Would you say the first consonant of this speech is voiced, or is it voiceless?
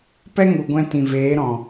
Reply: voiceless